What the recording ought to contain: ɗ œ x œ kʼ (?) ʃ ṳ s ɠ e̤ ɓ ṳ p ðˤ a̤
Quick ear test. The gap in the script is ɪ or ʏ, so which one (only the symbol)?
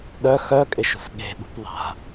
ɪ